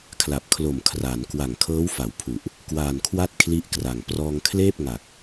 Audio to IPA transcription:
kʰla˨˩p̚kʰlo˨˩m kʰra˩˦n kwa˨˩ŋkʰɤː˦˥wfa˩˦wpʰu˨˩ʔ | kwaː˨˩nkʰwa˥˩t̚kʰli˦˥ʔkra˨˩ŋ prɔː˧ŋkʰleː˥˩p̚ŋa˨˩k̚

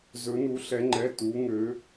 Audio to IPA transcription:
zɵ˧˥nu˧˥ɬɛ˧˥ŋ͡ǃɛ˧˥˧ tu˧˥ŋø˧˥

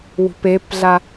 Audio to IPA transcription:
wṳpepɮa

